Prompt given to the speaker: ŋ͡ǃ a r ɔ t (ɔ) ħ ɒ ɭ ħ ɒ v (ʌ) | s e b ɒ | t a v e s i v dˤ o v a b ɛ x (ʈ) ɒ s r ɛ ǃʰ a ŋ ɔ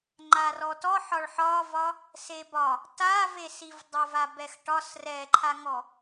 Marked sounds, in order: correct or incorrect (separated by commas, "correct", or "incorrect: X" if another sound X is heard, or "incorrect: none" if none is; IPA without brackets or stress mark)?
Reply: correct, incorrect: ɒ, correct